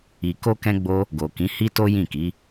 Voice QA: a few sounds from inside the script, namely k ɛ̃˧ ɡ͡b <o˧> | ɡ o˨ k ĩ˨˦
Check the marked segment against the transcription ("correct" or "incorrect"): correct